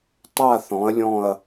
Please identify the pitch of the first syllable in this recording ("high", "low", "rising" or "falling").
falling